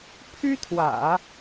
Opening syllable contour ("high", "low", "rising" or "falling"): high